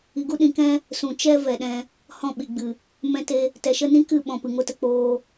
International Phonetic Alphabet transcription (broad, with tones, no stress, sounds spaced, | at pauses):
i˨ ɡ u˦ ɗ ĩ˨ k ɛ̃˦ | s ũ˨ t͡ʃ ɛ˦ v ɛ˨ ɗ ɛ̃˧ | h ɔ̃˦˨ ɓ i˨ ɡ͡b ɨ˨ | m ɛ̃˧ t e˧ | t ɛ˨ ʃ ə˦ n ĩ˦ k ɨ˦˨ ɓ ɔ̃˧ p ɨ˨ ŋ o˦ t ə˧ k͡p oː˧